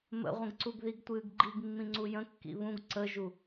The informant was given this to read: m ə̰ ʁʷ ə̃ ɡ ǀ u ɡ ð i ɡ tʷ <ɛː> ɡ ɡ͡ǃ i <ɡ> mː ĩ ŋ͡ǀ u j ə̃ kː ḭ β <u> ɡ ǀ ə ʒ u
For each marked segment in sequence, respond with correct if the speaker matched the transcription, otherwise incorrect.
incorrect: ɨː, correct, incorrect: ũ

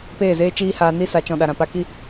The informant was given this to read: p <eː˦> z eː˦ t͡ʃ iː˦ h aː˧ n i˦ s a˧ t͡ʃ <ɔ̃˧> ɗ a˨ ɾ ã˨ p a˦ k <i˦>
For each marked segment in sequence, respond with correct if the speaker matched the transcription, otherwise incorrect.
incorrect: eː˦˨, correct, correct

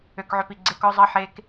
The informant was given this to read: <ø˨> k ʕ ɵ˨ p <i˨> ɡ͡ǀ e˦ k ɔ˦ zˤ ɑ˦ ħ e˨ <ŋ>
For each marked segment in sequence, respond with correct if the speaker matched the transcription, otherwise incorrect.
correct, correct, incorrect: k

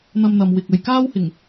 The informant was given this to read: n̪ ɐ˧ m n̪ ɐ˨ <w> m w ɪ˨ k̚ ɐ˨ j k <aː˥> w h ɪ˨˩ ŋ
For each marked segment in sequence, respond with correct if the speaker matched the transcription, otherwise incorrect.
incorrect: none, correct

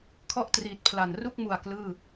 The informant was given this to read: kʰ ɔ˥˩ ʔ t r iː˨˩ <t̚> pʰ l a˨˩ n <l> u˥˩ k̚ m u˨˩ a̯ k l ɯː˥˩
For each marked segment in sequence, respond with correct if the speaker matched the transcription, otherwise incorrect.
correct, incorrect: r

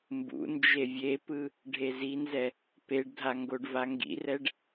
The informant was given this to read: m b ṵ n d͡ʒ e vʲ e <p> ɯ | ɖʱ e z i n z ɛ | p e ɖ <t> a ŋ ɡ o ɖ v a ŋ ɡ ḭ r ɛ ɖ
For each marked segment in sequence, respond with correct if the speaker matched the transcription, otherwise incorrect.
correct, incorrect: dʱ

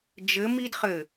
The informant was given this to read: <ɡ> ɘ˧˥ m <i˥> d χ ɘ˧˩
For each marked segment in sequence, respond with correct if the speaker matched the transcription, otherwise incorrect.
incorrect: d͡ʒ, correct

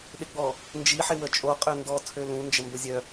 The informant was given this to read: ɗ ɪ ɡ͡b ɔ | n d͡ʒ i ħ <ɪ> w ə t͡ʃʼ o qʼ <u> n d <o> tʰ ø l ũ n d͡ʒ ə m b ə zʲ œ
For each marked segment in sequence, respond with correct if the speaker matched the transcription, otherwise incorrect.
correct, incorrect: ø, incorrect: ɔ

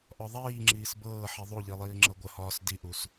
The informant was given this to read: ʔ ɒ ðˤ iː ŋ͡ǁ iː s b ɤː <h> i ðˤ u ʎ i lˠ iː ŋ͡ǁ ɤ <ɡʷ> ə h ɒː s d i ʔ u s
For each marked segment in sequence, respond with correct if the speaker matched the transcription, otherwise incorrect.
incorrect: ħ, correct

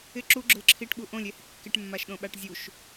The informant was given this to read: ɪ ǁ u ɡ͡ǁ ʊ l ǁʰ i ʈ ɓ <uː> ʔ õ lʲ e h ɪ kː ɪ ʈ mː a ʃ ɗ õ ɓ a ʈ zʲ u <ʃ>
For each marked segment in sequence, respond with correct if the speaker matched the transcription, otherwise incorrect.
incorrect: u, correct

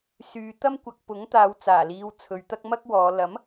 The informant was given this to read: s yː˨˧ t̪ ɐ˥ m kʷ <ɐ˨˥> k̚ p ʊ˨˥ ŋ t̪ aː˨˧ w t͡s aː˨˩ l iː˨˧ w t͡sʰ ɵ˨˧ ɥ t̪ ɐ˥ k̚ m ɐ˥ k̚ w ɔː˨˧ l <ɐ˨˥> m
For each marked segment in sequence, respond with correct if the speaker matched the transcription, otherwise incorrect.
incorrect: ɐ˨, correct

